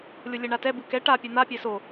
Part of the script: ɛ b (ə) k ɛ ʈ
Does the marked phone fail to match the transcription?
yes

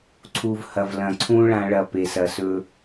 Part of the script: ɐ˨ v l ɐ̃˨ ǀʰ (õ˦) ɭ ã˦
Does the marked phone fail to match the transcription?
yes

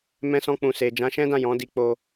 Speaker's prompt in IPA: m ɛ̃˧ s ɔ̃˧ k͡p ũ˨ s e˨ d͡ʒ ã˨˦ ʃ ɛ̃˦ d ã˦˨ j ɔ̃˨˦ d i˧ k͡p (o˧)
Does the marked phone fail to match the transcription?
no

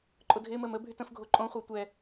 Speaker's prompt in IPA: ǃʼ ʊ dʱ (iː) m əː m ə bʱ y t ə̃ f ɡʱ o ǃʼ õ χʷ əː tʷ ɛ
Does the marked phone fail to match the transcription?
yes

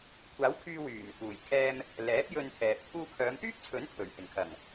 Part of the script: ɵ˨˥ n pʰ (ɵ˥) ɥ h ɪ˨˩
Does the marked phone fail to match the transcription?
yes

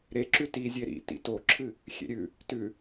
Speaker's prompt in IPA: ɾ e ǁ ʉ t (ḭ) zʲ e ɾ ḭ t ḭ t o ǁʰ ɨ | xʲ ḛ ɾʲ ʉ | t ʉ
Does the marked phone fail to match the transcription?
yes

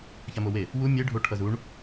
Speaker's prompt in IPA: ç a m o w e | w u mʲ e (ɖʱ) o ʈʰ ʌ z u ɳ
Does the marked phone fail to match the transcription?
no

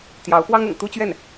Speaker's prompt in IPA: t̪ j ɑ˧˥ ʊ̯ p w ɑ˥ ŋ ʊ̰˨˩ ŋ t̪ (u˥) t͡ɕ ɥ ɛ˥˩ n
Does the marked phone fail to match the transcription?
no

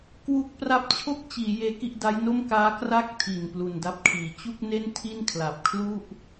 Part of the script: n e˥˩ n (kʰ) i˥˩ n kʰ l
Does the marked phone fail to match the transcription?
yes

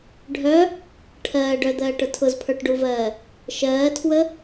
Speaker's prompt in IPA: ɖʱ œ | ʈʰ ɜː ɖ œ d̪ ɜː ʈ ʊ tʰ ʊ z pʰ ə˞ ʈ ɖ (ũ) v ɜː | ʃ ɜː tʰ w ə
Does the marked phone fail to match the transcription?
yes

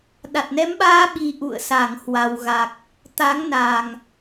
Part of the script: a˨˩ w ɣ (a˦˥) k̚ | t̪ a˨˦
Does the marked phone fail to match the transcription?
yes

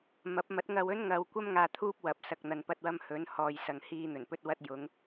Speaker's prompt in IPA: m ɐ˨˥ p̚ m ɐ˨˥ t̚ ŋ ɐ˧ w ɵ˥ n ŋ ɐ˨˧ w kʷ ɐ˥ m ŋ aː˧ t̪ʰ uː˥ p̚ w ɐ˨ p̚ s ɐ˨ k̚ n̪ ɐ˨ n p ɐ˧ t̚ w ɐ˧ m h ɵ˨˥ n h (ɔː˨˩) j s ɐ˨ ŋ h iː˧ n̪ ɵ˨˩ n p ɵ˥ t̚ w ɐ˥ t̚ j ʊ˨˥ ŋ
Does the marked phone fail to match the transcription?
yes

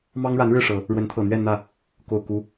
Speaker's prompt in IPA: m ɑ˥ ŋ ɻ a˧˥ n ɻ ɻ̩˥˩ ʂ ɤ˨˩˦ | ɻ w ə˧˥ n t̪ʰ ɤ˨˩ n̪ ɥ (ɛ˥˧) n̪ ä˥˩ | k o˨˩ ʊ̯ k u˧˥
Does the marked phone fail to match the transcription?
no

